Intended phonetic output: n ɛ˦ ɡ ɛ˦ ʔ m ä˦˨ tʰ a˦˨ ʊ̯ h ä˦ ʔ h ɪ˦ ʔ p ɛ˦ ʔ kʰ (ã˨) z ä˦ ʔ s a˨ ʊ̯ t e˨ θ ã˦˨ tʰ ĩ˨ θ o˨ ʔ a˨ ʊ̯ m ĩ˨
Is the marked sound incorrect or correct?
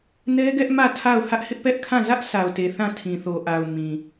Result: incorrect